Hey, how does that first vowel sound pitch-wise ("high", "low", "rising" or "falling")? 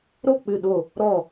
falling